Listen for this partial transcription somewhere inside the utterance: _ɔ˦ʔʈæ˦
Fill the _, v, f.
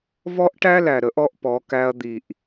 v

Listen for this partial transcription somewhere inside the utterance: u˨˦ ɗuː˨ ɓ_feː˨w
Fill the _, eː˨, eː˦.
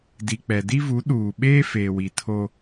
eː˦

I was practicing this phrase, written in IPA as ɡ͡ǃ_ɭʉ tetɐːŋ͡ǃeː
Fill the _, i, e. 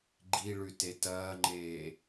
i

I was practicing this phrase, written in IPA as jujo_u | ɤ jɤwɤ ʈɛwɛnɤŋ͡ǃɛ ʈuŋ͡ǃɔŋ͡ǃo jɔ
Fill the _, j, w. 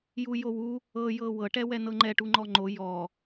w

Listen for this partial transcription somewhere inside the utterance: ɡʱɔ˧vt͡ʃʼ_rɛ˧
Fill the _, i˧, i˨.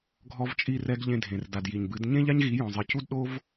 i˧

